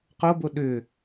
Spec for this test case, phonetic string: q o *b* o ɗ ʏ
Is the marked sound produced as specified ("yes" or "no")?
yes